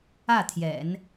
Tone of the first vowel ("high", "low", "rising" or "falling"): falling